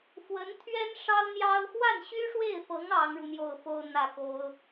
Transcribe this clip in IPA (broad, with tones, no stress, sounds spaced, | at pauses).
f w ə˧˥ n t̪ʰ ɥ ɛ˥ n ʂ ɑ˥ ʊ̯ n̪ j ɑ˥ ʊ̯ x w a˥˩ n ɕ y˥ ʂ w e˥˩ ɪ̯ f ɤ˧˥ ŋ ɑ˧˥ ŋ ɻ u˧ n̪ j o˥˩ ʊ̯ f o˥ ʊ̯ n̪ ä˥˩ k o˥ ʊ̯